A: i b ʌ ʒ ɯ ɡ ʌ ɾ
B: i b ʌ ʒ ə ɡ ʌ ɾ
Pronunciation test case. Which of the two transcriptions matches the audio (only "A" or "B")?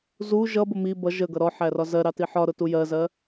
B